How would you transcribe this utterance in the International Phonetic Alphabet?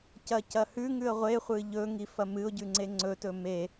c ɐ c ɐ h ʉ ŋ ʉ ə̯ ʁʷ e χʷ ɨ ʎ ɵ ŋ i f ɐ m ɨ ʊ̯ ɟ ʉ ŋ͡ǀ e ŋ͡ǀ ɵ t ɵ m e

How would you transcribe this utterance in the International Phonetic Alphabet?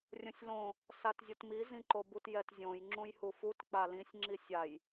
rʲ õ sʲ l õ | s a t zʲ o t m i z ĩ ǃ o b u t j ɛ t zʲ õ j ŋ͡ǁ ũ j h u f u t k͡p a l ĩ sʲ ŋ͡ǁ i sʲ a j

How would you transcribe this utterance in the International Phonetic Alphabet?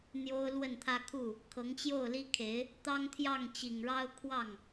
n̪ j o˥ ʊ̯ l w ə˥˩ n t̪ʰ ä˥ kʰ u˥˩ | kʰ ɤ˧˥ ŋ t͡ɕ j o˥˩ ʊ̯ l i˥ kʰ e˧˥ ɪ̯ | t̪ ɑ˥ ŋ t̪ʰ j ɑ˥˩ ŋ t͡ɕ i˨˩ ŋ ɻ ɑ˥ ʊ̯ kʰ w ɑ˥˩ ŋ

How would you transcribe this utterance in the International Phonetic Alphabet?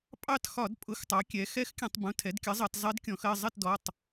pʼ ɑ˦˨ t x ɒ˧˩˧ d pʼ ʊ˩˥ x tˤ ɑ˩˥ kʲ ɛ˩˥ x ɛ˧˥ x kʲ ə̃˧˩˧ tˤ b ũ˩˧˩ tʰ ɛ˩˥ d kʲ ə˩˥ zˤ ʌ˧˩˧ t zˤ ɜ˧˥ d kʲ ɔ̃˧˩˧ x ɜ˦˨ zˤ ɪ˦˨ t d ɔ˩˧˩ tˤ

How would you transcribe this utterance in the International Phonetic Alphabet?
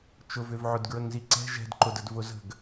t͡ʃ ʊ v ʏ v ʕ ʊ d ɡ ɹ ə ŋ z i ǀ ɛ̤ ʒ ɛ̤ d ǃ ʊ d ə d v ʊ z ə̤ ɡ

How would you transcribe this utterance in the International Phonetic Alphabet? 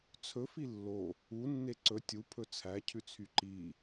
t͡sʰ ɵ f i lː o | u nː e ǀ ɵ tʲ u pʰ ɵ t͡sʰ æ cʰ ʉ t͡sʰ y ǃ i

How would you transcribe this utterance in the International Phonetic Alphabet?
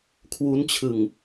kʰ w u˦˥ n t͡ɕʰ ɯ˨˩ ŋ

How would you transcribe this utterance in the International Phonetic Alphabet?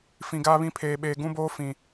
f ĩ˨ ɡ aː˦ β ĩ˦ pʰ eː˨ ɓ eː˨ ɡ ũ˦ b oː˦ f ĩ˨

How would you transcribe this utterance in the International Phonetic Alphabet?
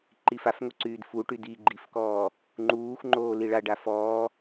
ǃ i f a f ŋ o ǀ yː d f u ʈ y d i ɡ͡ǃ i f k ɔː | ŋ͡ǃ uː x ŋ͡ǃ oː l i ɭ a ɖ a f ɔː

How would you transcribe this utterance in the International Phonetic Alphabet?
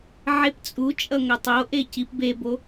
ʕ e p t͡sʼ u t͡ʃʼ ʌ ŋ ʌ tˤ o ʔ e c i p b e b o

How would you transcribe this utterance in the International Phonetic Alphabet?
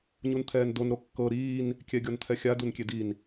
ɲ u n t̪ʰ ɛː n d o n ɾ o kː ɤ ɾ iː n | kʲ ɛ ɡʲ ɔ n t̪ʰ ɛ xʲ a d u n kʲ e d i n

